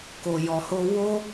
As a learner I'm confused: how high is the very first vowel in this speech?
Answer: mid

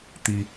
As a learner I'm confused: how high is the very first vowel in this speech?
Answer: high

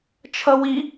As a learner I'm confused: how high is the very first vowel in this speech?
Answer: mid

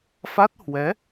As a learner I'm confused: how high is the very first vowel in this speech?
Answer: low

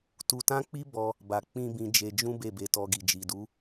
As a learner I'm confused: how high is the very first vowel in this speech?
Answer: high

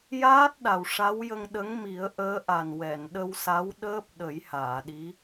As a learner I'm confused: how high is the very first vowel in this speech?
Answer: low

